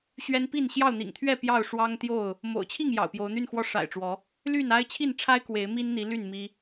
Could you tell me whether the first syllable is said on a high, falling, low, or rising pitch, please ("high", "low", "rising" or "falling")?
high